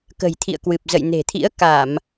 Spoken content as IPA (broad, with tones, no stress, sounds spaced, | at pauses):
k ə̤˨˩ j t̪ʰ ḭ˧˨ ə̯ k w ɨ˨˩ p̚ z ə̰˧˨ j n e̤˨˩ t̪ʰ ḭ˧˥ ə̯ k a˧˩˨ m